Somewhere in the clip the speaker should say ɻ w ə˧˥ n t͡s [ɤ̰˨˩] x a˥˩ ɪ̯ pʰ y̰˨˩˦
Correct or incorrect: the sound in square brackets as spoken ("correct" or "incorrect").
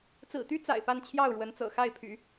correct